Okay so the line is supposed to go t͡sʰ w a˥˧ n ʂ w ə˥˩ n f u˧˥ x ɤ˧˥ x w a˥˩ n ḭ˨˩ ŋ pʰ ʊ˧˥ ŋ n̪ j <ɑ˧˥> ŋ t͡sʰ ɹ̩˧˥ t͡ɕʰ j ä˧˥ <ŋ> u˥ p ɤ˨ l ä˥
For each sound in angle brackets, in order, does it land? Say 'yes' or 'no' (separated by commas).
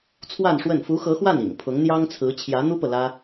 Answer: no, no